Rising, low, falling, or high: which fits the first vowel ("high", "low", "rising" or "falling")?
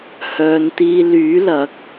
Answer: low